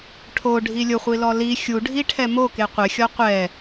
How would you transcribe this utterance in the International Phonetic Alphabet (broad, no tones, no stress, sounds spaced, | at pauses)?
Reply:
ʈʰ o ɖʱ i lʲ ʊ χʷ i l ɔ l i xʲ u ɖʱ i ʈʰ ɛ m o k e qʷ ɪ xʲ ɔ qʷ ɛ